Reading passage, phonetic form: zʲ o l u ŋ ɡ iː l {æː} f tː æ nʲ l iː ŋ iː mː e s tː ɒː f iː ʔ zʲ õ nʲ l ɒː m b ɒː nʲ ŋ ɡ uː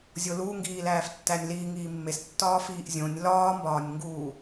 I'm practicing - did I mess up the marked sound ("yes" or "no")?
no